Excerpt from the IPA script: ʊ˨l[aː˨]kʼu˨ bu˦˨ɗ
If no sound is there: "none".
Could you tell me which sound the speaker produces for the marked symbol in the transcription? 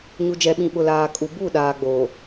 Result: aː˨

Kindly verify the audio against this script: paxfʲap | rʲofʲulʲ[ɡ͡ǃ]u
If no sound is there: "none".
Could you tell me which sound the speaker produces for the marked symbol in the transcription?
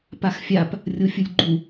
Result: ɡ͡ǃ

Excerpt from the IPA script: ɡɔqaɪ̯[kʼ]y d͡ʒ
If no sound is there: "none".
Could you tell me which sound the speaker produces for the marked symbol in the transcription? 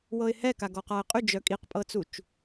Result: qʼ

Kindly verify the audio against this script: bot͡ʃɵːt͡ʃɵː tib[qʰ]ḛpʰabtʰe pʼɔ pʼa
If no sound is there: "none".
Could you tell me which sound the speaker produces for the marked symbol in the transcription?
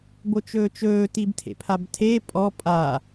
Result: tʰ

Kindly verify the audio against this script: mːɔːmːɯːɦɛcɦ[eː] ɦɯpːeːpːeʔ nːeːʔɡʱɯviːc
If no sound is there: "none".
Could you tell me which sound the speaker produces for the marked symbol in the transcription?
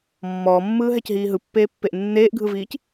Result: iː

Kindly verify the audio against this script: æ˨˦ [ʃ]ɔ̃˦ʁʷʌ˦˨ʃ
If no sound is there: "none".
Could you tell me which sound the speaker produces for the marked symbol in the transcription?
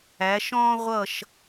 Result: ʃ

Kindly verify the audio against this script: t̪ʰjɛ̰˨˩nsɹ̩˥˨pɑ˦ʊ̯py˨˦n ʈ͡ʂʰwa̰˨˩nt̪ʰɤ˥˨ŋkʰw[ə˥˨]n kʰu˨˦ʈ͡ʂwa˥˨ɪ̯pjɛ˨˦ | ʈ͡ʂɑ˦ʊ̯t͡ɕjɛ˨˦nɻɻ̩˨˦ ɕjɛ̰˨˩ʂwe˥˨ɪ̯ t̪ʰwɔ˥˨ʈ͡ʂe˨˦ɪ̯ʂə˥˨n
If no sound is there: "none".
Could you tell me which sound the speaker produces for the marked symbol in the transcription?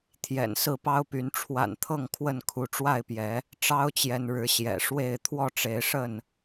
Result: ə˥˨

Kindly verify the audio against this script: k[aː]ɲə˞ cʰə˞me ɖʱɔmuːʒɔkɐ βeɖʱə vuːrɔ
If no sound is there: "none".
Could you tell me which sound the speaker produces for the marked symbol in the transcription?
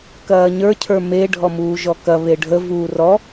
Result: ɐː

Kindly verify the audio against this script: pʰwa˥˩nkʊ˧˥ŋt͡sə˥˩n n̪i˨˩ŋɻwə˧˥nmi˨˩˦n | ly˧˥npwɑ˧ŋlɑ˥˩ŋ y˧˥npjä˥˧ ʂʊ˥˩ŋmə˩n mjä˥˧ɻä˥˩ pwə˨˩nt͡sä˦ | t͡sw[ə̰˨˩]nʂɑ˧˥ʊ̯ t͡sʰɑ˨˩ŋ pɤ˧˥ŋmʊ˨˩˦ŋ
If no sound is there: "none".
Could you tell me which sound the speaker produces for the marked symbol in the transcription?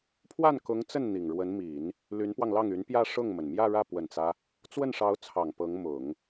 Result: ə˥˩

